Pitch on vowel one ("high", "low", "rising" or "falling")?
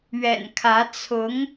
low